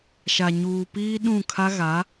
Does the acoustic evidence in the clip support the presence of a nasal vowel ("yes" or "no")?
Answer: yes